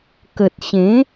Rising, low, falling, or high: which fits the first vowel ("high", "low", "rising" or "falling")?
low